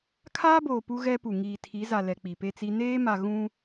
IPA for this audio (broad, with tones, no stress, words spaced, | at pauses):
kʰaː˦boː˨ pu˦ɣɛ˦pu˨ ŋiː˨tʰi˨˦za˨ lɛ˨k͡pi˨pe˦t͡si˦ neː˦ma˨ ɣũ˦